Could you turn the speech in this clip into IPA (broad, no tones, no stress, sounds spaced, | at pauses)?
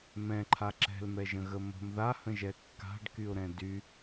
m ɛ̃ ǃʰ a ǁ ɛ̤ l m ɛ ʒ ə̃ ɣ ə m ə̤ m ð a h ə̃ ʒ ɛ kː a̤ ɖ k y ʊ̯ ɾ ɛ̃ d y